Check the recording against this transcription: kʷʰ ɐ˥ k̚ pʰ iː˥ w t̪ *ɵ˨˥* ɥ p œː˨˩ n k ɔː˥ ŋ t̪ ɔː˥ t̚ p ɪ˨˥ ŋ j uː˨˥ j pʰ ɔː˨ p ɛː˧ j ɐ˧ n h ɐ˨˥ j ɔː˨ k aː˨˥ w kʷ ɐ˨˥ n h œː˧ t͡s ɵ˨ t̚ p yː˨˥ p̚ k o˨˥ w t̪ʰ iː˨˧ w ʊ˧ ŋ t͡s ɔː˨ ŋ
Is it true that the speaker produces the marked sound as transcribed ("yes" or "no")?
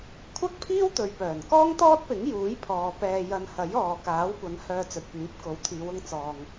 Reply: no